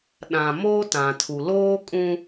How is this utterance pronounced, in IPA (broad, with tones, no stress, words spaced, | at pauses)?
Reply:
ɗã˨moː˦tã˨tʰu˨ loː˦kʼũ˦